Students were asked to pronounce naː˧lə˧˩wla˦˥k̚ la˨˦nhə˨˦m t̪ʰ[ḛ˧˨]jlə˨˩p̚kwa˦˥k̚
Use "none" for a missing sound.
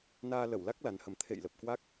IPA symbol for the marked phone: ḛ˧˨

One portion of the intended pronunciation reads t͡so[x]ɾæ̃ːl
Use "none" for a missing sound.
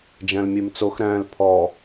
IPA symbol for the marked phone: x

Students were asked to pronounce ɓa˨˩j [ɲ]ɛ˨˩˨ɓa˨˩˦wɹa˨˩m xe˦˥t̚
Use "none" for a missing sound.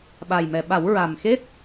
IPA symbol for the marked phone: m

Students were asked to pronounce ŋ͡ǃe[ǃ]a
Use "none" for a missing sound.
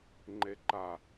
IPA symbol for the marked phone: ǃ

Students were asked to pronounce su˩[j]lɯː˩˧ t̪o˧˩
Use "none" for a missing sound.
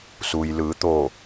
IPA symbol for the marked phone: j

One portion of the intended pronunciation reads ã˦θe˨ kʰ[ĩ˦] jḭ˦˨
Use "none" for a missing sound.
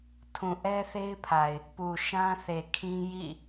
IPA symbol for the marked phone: ĩ˦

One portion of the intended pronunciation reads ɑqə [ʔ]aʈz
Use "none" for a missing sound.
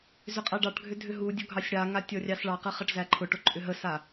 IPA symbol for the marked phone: χ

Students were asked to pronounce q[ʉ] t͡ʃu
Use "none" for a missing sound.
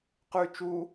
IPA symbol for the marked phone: ʉ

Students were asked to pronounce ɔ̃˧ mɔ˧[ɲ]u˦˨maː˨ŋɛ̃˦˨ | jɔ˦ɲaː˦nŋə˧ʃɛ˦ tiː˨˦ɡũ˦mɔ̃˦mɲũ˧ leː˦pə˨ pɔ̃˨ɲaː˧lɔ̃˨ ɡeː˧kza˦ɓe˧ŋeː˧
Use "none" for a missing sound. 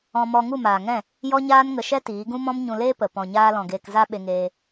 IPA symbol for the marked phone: ŋ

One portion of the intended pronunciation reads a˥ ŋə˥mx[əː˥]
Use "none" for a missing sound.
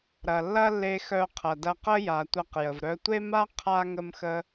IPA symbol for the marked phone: ə˥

